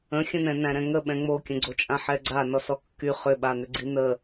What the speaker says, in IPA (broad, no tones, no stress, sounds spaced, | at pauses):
ə̃ xʲ ə̃ n̪ ɛ̃ n æ̃ ɾ ɛ̃ ŋ ə ɓ ɛ̃ ŋ͡m o kʲ ə̃ ɡ͡ǀ o t͡ʃʼ ã ħ ɛ ɡ͡ǀ a n ɔ s ɔ kː y χ ʏ ɓ a n̪ ʏ ɡ͡ǀ i n̪ ə